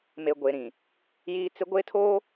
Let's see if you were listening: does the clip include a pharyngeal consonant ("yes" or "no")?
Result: no